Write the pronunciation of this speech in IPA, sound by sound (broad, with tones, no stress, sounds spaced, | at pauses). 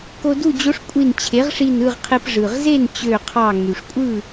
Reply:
k o˧ d u˥˨ d͡ʑ o˧˥ ʂ kʷʼ i˧˩ n t͡ɕʰ e˩˥ ʁ ʂ i˧˩ n ɯ˥˨ ʁ qʰ e˧ p ʐ ɯ˩ ʁ z e˥˨ n t͡ɕ ø˧˩ qʰ ɑ˧˩ ŋ y˩ ʂ kʷʼ ɯ˥˨